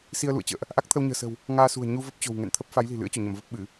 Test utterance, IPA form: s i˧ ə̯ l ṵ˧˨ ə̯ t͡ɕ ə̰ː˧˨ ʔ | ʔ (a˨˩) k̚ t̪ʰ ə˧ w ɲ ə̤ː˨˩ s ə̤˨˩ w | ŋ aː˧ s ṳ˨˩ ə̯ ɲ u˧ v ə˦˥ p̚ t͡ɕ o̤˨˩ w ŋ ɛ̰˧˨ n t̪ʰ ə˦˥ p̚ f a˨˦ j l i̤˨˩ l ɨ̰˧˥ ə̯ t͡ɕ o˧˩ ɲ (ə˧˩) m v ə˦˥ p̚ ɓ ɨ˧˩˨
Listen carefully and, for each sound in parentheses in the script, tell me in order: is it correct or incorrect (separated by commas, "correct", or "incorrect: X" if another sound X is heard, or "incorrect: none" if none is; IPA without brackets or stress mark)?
incorrect: a˦˥, correct